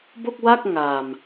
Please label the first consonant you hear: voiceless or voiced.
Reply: voiced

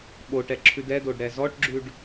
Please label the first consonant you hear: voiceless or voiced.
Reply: voiced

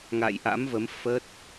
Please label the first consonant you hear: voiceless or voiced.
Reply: voiced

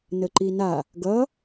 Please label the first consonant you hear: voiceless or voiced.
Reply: voiced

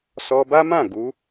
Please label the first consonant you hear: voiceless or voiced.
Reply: voiceless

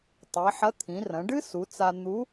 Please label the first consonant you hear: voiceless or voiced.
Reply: voiceless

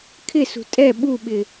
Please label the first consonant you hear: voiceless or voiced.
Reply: voiceless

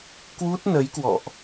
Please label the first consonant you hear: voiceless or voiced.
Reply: voiceless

